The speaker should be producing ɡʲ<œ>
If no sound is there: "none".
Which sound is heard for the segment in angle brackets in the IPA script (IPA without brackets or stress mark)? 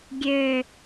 ø